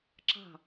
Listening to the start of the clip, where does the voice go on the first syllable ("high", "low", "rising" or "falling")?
falling